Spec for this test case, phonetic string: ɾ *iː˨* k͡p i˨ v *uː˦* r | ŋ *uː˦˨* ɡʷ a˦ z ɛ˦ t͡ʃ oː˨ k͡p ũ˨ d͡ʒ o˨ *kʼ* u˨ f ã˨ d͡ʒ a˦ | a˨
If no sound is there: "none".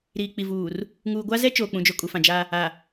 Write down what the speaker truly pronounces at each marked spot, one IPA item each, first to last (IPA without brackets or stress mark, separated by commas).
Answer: iː˨, uː˨, uː˨, kʼ